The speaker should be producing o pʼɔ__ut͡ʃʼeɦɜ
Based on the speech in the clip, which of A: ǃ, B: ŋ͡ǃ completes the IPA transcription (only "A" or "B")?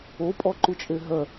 A